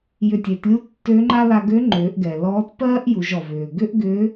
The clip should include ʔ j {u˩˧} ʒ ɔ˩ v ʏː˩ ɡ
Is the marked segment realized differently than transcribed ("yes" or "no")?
no